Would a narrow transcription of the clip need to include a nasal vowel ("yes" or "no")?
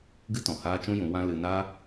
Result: yes